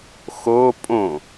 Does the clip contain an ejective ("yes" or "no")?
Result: yes